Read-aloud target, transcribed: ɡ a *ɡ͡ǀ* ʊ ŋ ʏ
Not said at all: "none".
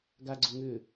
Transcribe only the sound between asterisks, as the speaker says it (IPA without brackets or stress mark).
ɡ͡ǀ